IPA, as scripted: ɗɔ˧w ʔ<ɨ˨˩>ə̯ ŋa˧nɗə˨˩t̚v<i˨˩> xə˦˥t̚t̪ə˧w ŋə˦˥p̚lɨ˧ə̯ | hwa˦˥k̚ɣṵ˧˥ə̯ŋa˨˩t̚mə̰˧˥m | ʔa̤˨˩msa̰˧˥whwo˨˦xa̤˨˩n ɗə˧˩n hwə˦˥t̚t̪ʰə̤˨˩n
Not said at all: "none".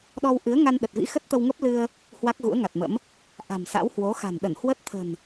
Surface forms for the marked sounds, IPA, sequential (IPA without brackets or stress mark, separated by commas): ɨ˨˦, ḭ˧˥